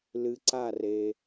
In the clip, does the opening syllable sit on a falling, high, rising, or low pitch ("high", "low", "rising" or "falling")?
low